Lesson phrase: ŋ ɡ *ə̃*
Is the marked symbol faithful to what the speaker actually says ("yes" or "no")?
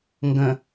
yes